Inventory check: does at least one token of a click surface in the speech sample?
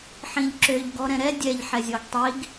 yes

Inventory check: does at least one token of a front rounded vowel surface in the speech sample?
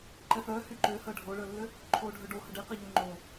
yes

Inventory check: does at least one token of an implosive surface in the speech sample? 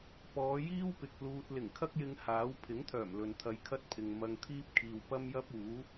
no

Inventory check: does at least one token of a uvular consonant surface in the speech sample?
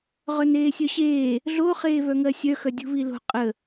yes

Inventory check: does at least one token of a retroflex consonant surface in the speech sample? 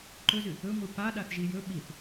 no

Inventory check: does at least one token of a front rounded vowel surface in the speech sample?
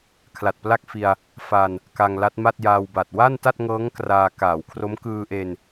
no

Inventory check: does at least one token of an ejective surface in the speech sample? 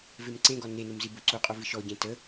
yes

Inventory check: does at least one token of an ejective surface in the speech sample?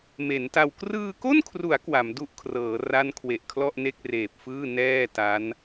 no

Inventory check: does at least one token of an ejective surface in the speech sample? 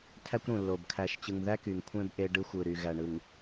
no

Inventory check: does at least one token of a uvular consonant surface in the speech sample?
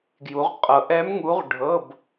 yes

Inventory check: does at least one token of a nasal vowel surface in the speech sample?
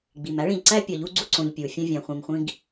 yes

